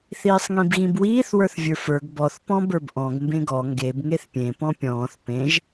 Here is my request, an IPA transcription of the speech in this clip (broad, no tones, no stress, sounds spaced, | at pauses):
θ iː sˤ ŋ ĩ b ɣ ĩ b w iː θ w ə˞ θ vʲ ə˞ f ə˞ ɡ b ɔ θ p ɔ̃ b ə˞ b ʔ ɔ̃ ɡ m b ẽ ɡ ɔ ŋ ɡ e b ŋ e θ pʲ ẽ p ɔ̃ pʲ ɔ̃ː θ p ẽ ʒ